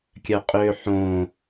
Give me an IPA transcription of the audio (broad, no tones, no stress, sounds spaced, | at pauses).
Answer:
kʲ œ qʼ ø ħ õ